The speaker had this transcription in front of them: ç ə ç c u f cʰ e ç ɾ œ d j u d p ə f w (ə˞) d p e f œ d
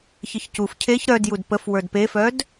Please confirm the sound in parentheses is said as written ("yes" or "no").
yes